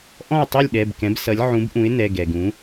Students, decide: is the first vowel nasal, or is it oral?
nasal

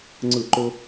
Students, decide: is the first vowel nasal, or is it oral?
oral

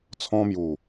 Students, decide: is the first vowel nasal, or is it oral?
nasal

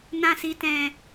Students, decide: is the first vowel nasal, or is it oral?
nasal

